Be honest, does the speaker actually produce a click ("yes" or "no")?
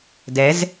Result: no